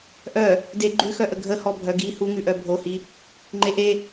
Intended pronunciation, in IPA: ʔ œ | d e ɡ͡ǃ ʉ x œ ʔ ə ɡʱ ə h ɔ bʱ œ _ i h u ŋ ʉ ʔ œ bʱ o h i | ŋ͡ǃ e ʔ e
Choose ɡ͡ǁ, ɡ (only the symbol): ɡ